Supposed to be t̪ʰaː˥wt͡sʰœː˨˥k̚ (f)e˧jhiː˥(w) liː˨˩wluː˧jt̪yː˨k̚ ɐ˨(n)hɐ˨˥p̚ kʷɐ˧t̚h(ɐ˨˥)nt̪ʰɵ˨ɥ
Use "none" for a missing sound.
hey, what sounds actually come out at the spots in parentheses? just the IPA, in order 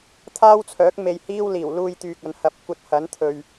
m, w, n, ɐ˨˥

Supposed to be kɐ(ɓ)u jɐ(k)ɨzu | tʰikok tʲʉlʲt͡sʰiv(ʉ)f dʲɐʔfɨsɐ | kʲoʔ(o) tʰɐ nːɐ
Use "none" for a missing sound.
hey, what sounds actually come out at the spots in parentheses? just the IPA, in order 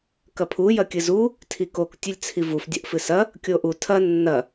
pʰ, kʲ, u, u

